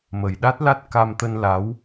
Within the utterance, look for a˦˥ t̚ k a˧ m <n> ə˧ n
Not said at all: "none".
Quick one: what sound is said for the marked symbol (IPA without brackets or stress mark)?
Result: t̪